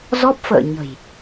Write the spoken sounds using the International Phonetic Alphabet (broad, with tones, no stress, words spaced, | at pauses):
zɔ˦˥p̚fə̰ː˧˨ ɲə̤˨˩j